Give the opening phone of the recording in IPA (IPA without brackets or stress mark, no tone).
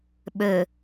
ɓ